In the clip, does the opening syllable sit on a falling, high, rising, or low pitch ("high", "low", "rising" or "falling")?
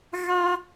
high